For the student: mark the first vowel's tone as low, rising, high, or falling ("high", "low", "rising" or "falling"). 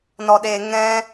low